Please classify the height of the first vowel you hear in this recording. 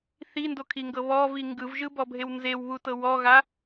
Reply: high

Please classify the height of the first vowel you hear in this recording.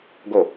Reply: mid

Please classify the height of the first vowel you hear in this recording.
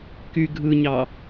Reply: high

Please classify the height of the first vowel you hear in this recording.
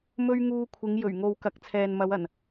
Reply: mid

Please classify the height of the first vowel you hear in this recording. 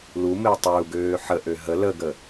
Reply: high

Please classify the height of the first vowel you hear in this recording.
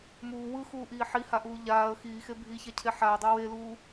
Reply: high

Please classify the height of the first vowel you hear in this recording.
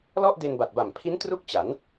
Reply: mid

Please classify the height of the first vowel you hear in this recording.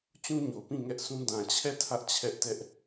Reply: high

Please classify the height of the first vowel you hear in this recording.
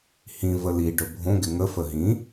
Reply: high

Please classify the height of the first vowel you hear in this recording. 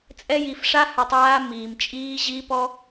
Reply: mid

